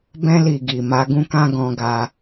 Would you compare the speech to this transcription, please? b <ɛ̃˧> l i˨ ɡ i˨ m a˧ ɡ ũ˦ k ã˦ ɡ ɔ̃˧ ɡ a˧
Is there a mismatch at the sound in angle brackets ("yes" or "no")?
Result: no